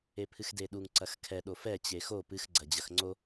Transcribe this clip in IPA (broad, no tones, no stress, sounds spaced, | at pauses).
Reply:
e pʰ ɨ x d e ɗ u ŋ ǀ ɐ x kʰ ɛ ɗ o f ɛ t͡ɕ e x o p ɨ x ɡ͡ǀ ɐ d͡ʑ ɐ x ŋ͡ǀ o